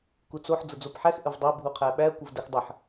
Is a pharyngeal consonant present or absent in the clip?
present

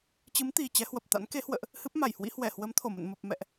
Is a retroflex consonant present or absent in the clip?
absent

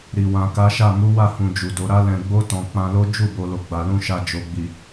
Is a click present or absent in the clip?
absent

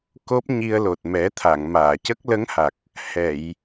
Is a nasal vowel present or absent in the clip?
absent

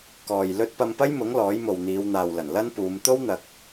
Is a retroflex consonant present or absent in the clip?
absent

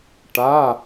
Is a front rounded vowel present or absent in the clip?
absent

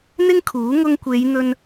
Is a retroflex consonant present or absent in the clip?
absent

